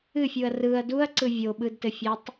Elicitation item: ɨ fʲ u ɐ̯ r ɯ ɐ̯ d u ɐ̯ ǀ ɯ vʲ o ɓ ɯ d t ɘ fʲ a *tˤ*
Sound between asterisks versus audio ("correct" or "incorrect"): correct